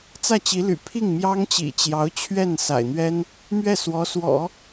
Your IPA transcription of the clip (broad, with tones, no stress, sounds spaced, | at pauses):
t͡s ä˥˩ t͡ɕ i˧˥ l y̰˨˩ pʰ i˥˩ ŋ m j ɑ˥ ŋ t͡ɕ ḭ˨˩ t͡ɕ j ɑ˧˥ ʊ̯ t͡ɕʰ ɥ ɛ˥˩ n s a̰˨˩ ɪ̯ n̪ ɥ ɛ˥ n | m ɥ ɛ˥˩ s w ɔ˧˥ s w ɔ̰˨˩˦